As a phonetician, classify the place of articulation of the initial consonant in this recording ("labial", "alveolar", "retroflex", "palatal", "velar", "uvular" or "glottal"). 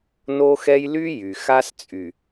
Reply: alveolar